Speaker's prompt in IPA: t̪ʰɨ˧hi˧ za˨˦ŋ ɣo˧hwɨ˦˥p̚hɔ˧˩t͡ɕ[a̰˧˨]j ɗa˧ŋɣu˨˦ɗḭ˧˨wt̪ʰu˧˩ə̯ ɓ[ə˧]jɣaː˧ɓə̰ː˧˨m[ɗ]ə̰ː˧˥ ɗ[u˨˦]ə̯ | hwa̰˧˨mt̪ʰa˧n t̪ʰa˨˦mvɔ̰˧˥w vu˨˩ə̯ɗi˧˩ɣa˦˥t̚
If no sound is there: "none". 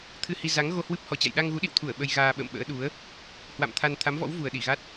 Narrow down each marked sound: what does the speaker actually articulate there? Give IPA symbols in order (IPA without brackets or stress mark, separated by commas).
a̰˧˨, ə˧, ɓ, u˨˦